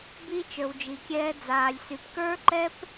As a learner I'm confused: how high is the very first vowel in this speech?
high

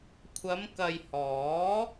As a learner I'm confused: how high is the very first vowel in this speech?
low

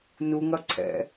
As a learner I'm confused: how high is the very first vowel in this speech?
high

